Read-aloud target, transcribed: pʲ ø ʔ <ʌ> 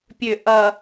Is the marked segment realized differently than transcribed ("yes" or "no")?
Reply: no